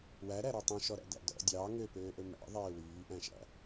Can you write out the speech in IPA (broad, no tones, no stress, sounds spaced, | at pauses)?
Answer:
w æ ɾ æ ɾ ɔ tˤ ũ ʃ ɔ ɾ æ̰ d æ̰ d ɔ̰ dʲ ɑː ŋ ø p øː ʔ ɵ m æ̰ ðˤ eː w yː ʔ æ̃ ʃ æ̰